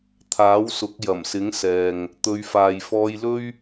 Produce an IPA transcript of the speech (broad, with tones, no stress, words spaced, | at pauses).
t̪ʰaː˨˥wsʊ˨˥k̚ jɐ˨˩msɪ˨˥ŋ sɛː˨ŋ | t̪ɵ˨˧ɥfaː˨jfɔː˧jlɵ˥ɥ